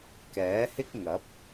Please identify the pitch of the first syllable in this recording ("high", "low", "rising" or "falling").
rising